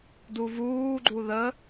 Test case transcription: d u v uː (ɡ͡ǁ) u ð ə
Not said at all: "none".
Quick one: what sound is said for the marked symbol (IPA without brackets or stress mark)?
ɡ͡ǃ